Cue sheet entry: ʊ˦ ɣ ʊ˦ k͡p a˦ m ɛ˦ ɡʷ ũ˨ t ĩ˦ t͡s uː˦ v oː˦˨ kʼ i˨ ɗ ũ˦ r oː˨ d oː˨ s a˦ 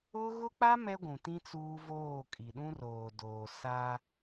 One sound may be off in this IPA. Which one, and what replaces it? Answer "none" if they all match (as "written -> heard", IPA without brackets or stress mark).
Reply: none